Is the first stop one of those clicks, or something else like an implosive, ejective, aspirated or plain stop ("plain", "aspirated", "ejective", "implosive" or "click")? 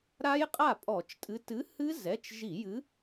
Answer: ejective